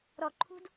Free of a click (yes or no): no